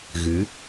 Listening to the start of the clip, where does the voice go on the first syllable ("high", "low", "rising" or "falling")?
rising